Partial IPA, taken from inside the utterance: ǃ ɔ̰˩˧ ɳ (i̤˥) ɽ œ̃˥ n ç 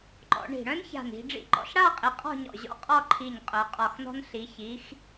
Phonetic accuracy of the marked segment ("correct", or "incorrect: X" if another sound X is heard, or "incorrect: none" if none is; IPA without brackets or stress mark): incorrect: i̤˧˩